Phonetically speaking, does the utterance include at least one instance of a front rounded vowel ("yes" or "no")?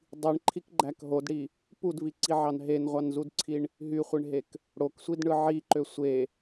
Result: yes